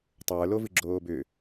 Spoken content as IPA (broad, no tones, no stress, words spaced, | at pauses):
tˤə˞ lovɨɡ͡ǁoːbʏ